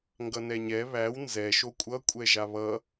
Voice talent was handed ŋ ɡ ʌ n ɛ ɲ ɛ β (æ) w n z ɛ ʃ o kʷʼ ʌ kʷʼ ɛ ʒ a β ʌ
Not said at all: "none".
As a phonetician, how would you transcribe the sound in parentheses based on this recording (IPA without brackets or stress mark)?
æ